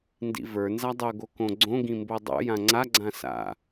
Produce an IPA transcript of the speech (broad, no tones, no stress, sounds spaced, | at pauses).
n d ḭ v ə˞ n z a dˤ o ɡ o k õ ɡ͡ǀ õ ɡ ĩ m b o dˤ o̰ j ã ŋ͡ǀ a ɡ͡ǀ ã s a̰